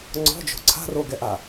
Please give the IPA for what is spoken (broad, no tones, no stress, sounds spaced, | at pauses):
ŋ͡ǀ ɔ̤ d͡ʒ o̤ ǀʰ a̤ r o ɡ ɛ ʔ a